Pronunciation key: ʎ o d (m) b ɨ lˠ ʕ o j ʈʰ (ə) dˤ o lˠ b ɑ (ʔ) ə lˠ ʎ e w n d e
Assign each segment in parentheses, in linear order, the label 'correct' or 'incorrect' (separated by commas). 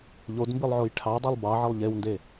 correct, incorrect, incorrect